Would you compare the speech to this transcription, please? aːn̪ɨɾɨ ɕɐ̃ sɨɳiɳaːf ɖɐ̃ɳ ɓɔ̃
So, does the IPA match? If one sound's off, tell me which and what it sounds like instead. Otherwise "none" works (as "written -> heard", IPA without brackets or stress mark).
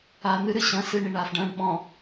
none